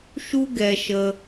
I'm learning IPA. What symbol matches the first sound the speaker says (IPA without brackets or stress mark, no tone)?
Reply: ʃ